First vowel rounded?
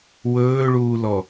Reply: yes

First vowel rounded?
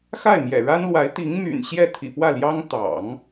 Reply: no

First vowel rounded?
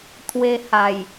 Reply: no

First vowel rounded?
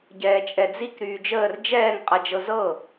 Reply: no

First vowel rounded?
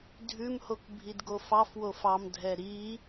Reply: yes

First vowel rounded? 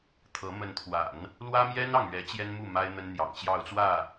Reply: no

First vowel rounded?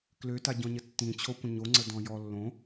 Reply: yes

